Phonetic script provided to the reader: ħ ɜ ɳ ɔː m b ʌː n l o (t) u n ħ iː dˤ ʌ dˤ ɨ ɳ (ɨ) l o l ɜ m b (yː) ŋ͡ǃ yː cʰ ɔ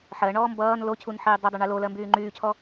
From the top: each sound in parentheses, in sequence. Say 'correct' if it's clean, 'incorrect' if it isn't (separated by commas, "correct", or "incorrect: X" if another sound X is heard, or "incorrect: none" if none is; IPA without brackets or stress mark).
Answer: incorrect: cʰ, correct, correct